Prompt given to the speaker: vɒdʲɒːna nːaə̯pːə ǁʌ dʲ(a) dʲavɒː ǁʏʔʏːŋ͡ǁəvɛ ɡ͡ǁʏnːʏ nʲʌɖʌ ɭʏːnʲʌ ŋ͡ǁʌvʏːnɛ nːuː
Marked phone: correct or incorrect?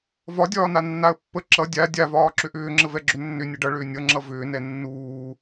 correct